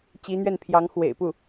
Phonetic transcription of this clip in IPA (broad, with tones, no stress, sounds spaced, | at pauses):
t͡ɕ i˧˥ n̪ ɥ ɛ˥˩ n pʰ j ɑ˧˥ ŋ x w ḛ˨˩ ɪ̯ p u˥˩